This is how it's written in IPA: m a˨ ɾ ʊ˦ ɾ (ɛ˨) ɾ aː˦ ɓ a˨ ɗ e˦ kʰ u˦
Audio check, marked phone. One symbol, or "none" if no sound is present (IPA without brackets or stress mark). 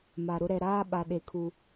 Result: ɛ˨